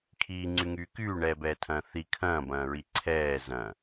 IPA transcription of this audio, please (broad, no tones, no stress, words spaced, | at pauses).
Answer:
kʰiːŋ͡ǀyŋyː kyːɳɛːbɛːtʰɐ̃ː θi kʰɐ̃ːbɐ̃ːɹi ǀʰɛː zɐ̃